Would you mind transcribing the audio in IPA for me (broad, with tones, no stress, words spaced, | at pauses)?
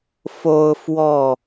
fo˦ʊ̯fwɔ˥˨